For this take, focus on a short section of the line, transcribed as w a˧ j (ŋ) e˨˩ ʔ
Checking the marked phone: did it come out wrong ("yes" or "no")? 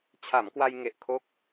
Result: no